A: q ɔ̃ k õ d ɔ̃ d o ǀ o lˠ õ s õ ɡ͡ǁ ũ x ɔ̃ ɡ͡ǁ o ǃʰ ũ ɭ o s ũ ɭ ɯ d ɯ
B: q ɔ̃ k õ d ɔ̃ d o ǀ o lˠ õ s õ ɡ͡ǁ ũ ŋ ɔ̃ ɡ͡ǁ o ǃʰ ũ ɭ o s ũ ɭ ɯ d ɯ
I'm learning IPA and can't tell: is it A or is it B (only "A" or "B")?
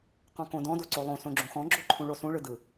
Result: A